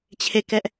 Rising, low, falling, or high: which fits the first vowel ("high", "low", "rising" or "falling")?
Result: falling